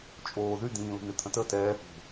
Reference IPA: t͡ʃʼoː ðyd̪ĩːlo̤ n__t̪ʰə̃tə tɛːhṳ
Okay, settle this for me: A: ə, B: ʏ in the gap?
B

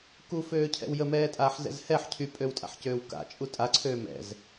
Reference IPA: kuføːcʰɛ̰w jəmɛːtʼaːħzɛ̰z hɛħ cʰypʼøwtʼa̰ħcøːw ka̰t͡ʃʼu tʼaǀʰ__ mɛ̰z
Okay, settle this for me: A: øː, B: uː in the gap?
A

